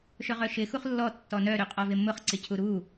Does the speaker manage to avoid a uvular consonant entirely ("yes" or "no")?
no